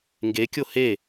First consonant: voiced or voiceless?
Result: voiced